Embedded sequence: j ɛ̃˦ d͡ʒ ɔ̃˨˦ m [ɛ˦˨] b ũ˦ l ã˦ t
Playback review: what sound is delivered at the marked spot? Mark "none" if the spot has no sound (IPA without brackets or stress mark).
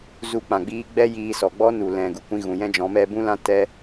ɛ˦